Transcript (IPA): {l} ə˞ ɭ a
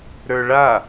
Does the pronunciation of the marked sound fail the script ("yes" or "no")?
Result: yes